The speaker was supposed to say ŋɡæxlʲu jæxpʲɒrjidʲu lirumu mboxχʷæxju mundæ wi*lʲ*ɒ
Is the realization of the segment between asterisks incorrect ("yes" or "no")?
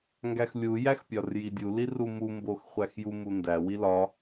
yes